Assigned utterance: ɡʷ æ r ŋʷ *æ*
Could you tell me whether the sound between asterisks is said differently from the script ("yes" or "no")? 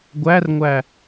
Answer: no